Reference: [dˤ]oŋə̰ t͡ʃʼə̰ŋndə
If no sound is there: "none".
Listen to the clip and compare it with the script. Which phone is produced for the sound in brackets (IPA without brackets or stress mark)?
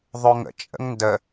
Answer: ðˤ